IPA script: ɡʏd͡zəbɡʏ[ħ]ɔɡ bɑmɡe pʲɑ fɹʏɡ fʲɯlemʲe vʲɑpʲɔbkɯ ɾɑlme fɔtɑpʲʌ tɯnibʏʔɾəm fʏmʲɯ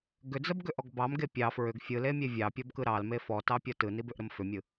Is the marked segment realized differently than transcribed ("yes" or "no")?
yes